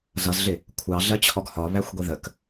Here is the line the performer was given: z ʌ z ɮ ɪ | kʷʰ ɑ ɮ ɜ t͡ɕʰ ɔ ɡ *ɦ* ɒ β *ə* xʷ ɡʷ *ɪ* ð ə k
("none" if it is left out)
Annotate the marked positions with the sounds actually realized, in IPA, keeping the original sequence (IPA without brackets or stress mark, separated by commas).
h, æ, i